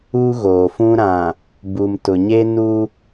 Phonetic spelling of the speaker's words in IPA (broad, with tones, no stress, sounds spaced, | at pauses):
u˦ ɣ oː˨ f ũ˦ ɾ ã˨ | b u˨ m t ʊ˨ ɲ e˦ n u˦